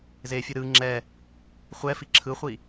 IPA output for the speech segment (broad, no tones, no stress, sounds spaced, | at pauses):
z e fʲ ɯ ɾ ɯ ŋ͡ǁ ɛ | χʷ ɛ f i ǁʰ ɯ χʷ i